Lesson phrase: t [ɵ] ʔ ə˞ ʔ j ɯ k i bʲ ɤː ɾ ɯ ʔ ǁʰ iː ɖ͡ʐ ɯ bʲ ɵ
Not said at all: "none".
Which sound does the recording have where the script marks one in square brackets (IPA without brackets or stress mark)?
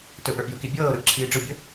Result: ɵ